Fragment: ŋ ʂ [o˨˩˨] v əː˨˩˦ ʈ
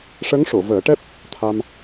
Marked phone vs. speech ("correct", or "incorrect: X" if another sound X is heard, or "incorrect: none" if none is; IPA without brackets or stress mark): correct